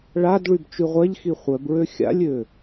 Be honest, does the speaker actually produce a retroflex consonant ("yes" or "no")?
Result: yes